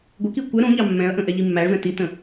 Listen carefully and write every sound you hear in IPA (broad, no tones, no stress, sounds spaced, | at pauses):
ɡʷ ə k i kʷ ɛ ɾ ũ ʎ ɑ mː ɛ̃ ɐ̯ ʔ ə̃ ʔ ɛ ʎ i mː æ ɭ v ɛ̃ t i t ə̃